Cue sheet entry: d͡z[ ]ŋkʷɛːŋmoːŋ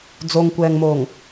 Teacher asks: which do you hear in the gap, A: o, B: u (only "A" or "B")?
A